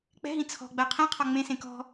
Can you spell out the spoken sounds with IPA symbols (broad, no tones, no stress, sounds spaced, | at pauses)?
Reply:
k͡p ɛ̤ ɦ ĩ t͡sʰ ɔ̤ ɡ͡b ɜ qʰ ĩ qʰ ɔ ŋ͡m ẽ s ẽ k ɔ̤